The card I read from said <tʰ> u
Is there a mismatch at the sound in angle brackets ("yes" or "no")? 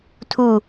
no